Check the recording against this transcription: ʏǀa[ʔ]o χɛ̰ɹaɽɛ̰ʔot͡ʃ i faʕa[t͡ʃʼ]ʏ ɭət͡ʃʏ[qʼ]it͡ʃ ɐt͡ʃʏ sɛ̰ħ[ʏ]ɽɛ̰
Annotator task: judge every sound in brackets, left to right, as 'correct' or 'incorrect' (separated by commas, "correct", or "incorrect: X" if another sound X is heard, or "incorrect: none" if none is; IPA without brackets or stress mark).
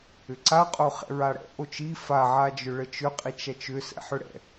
incorrect: qʼ, incorrect: d͡ʒ, correct, correct